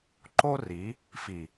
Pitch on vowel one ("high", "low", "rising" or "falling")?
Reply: high